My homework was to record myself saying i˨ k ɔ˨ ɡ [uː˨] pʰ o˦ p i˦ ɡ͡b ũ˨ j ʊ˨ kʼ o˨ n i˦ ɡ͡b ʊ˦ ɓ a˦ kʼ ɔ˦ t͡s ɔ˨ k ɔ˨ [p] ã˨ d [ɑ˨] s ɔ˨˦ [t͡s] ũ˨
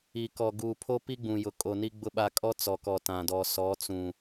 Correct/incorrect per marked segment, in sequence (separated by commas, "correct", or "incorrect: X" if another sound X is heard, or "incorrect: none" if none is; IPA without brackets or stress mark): correct, incorrect: t, incorrect: ɔ˨, correct